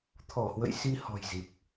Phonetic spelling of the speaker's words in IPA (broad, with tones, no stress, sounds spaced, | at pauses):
t̪ʰ ɔ˧˩ h w ə̰˧˨ j s i˧ h ɔ̤˨˩ j z i˨˩ p̚